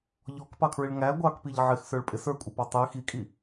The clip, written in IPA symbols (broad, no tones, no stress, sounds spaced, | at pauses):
ʎ ɔ k p ɑ kʰ ɹ ɪ ɭ ŋ æ ɡʷ ɑ k p i ʎ ʕ ɪ x s ə˞ ɭ pʼ ɪ s ə˞ kʷʼ ɪ p ɑ tˤ i x i kʼ i